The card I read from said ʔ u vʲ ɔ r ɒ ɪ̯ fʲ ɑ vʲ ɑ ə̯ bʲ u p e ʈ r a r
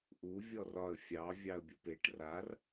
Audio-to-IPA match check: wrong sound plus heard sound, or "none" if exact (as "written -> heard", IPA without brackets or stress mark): ɪ̯ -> ə̯